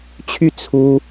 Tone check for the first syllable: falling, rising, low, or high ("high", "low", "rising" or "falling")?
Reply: falling